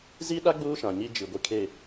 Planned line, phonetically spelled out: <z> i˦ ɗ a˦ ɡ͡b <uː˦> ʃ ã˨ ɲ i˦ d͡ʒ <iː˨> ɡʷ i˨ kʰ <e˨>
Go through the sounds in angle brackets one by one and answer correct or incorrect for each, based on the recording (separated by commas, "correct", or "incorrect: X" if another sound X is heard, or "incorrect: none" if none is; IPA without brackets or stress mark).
correct, correct, incorrect: i˨, correct